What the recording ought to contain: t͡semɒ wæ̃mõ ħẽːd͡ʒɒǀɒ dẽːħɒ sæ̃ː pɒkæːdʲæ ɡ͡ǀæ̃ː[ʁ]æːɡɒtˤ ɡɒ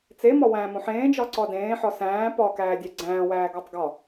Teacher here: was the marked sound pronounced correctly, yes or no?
no